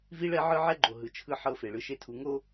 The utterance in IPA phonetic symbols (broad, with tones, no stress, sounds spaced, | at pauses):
v i˦ ɭ ɛ˦ ʕ ɯ˦ ʕ ɛ˦ ɡ͡ǃ o˨ ɦ ɯ˨ t͡ʃʰ ɯ˦ ħ ɤ˦˨ f e˨ ɭ ɯ˦ ʃ e˦ tʰ u˨ ŋ o˦